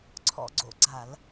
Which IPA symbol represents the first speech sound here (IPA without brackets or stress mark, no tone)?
ǀʰ